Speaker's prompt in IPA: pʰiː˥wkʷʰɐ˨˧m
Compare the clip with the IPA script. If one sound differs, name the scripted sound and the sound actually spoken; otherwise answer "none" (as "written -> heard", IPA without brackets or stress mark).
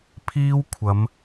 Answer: none